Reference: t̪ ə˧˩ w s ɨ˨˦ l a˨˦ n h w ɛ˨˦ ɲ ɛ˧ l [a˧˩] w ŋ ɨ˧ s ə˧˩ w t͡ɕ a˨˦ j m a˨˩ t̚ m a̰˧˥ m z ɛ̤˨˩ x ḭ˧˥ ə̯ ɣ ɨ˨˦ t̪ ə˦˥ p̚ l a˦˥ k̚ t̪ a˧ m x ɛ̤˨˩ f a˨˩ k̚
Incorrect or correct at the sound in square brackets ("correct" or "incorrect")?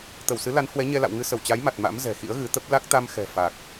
incorrect